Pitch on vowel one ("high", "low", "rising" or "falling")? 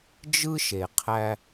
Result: high